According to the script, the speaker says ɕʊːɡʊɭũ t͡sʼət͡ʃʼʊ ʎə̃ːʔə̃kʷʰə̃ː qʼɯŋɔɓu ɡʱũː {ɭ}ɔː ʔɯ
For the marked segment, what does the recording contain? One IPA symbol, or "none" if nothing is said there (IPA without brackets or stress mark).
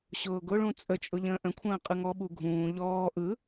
ʎ